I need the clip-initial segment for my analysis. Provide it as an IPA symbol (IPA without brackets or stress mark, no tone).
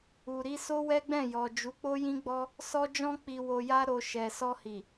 u